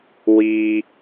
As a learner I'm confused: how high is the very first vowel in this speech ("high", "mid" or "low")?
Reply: high